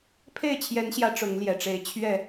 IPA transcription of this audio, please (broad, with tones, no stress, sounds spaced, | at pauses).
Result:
pʰ e˥˨ ɪ̯ t͡ɕʰ j ɛ˨˦ n ɕ j ä˨˦ ʈ͡ʂ ʊ˨˦ ŋ l j ɛ˨˩ ʈ͡ʂ e˨˦ ɪ̯ t͡ɕʰ ɥ ɛ˨˩